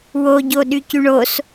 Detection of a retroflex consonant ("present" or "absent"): present